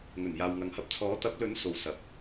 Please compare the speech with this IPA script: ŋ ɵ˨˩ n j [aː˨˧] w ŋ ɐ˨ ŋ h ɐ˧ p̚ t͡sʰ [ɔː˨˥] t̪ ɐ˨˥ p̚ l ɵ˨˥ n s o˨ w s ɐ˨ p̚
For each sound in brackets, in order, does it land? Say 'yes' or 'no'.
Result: no, yes

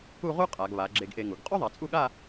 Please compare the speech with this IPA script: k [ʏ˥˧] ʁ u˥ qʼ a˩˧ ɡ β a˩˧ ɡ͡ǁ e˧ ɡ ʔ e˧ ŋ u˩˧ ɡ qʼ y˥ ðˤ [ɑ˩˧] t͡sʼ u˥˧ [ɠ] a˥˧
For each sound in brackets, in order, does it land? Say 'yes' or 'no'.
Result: no, no, yes

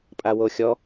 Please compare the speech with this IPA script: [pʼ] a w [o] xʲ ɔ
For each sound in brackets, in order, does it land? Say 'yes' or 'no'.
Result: yes, yes

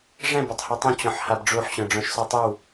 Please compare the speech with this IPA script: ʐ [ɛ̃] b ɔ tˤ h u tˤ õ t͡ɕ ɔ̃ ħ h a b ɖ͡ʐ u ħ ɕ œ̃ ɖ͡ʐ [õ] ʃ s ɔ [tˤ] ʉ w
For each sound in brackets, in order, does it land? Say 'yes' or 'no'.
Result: yes, no, yes

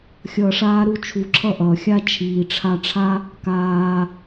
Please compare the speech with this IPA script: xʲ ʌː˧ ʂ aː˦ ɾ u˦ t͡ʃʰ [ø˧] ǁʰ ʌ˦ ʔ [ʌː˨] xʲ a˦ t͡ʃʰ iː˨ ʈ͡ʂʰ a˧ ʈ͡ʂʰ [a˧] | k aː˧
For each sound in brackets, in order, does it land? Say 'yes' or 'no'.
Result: no, yes, no

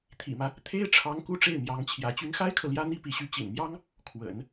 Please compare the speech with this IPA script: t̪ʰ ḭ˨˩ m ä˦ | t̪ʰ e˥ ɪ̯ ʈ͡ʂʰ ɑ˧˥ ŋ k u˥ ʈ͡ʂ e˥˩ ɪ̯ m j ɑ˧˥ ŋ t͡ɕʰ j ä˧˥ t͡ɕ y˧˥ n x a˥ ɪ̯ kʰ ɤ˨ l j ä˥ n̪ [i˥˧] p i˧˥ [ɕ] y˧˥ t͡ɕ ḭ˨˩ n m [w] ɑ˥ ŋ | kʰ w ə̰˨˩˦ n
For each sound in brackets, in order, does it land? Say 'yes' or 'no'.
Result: no, yes, no

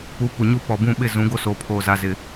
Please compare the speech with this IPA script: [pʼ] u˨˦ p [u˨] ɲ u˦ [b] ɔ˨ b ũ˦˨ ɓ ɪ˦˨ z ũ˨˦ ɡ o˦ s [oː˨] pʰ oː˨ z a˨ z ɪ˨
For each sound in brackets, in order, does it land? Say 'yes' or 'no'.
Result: no, yes, no, yes

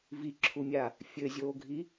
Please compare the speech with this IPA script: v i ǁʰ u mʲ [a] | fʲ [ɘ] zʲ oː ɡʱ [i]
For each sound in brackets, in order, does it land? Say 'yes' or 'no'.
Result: yes, yes, yes

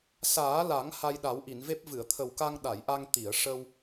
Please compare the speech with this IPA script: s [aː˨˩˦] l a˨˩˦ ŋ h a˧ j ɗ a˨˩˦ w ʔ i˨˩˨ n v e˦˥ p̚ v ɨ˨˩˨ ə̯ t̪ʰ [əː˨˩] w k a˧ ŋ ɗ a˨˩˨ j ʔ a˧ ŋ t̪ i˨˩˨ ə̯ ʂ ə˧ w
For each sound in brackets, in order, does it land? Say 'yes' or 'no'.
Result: yes, no

